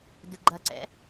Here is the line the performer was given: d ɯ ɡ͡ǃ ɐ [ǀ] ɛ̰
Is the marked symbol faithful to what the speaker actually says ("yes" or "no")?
yes